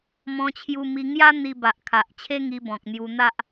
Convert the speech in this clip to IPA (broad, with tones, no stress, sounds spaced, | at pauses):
m ɔ̃˧ t͡ɕʰ j u˧ m i˧ ŋ j a˦ n̪ i˧ b a˨ ʔ kʰ a˨ ʔ t͡ɕʰ e˦ ŋ i˧ b ɔ̃˨ k̚ n̪ j u˧ n̪ a˦ ʔ